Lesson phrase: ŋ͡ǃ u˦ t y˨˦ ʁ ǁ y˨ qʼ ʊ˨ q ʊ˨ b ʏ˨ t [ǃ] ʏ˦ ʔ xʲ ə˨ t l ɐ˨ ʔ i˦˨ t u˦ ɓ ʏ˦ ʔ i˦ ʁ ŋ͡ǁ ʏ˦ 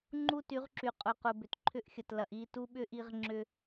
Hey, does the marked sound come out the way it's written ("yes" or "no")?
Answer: no